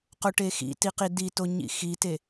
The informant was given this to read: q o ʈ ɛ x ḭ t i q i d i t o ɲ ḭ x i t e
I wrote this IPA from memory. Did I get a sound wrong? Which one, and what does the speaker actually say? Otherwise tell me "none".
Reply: ɛ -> e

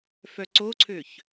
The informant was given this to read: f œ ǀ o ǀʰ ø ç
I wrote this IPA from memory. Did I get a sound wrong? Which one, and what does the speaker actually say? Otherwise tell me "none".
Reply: none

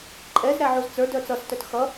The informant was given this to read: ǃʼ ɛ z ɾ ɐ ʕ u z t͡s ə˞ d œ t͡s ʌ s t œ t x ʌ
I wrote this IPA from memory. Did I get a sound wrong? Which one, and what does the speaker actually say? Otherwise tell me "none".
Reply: ɐ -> æ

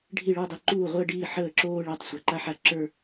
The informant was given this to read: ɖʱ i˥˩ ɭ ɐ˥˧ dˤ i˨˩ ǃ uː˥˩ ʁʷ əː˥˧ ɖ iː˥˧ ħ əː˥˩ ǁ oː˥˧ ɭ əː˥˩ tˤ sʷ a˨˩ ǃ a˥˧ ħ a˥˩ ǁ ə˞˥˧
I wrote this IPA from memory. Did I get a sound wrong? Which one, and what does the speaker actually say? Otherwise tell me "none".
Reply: ɐ˥˧ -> ə˞˥˧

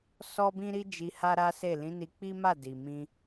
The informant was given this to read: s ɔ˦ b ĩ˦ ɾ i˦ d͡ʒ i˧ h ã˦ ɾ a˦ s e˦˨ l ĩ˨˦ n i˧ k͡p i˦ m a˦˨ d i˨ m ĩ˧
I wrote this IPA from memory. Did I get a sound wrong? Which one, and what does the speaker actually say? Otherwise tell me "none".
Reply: ã˦ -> a˦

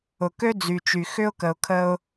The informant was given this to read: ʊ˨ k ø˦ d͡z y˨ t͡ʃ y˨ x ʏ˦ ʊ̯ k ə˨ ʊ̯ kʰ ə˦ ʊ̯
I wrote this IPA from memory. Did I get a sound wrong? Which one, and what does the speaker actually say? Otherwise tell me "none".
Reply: none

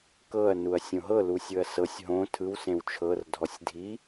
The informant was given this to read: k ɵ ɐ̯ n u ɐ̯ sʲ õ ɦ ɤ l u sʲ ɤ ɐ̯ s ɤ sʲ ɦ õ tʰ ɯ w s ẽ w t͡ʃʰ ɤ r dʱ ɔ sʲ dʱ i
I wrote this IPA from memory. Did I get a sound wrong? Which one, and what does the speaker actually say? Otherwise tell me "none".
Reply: ɵ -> ɤ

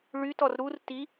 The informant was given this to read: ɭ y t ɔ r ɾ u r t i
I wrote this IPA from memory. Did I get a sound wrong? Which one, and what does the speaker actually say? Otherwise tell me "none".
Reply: none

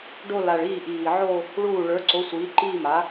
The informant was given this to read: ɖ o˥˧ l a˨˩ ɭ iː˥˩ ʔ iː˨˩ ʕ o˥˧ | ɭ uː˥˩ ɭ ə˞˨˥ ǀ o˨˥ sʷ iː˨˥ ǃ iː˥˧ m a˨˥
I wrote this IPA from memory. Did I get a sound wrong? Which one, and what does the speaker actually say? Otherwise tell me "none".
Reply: none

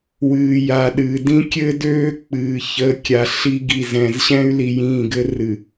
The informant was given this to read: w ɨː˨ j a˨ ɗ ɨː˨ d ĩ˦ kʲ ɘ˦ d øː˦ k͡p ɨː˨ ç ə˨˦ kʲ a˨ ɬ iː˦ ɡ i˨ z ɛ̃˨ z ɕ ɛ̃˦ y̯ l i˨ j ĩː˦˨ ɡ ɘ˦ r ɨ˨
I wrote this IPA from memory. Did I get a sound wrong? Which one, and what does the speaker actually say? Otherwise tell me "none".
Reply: iː˦ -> i˦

